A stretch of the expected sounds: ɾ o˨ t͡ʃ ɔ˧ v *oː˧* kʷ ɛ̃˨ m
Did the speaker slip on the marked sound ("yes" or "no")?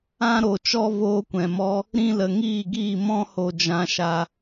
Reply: no